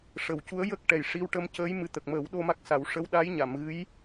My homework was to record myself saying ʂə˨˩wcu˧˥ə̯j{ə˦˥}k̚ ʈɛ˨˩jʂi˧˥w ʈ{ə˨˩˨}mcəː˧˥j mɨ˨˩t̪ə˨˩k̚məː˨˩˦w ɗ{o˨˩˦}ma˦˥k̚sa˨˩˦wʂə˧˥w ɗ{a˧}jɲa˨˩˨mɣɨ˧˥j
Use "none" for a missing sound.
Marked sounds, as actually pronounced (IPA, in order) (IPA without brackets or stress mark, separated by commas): ə˦˥, ə˧, o˧, a˧˥